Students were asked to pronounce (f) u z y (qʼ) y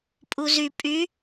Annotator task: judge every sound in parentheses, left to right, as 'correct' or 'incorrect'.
incorrect: pʼ, incorrect: pʼ

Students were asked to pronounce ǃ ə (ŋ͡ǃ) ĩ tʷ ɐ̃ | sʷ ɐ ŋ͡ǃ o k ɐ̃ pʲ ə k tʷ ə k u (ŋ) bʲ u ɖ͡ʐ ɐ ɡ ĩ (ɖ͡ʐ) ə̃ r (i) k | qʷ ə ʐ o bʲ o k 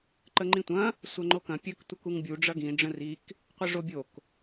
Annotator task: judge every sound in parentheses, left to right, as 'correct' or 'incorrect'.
correct, correct, correct, correct

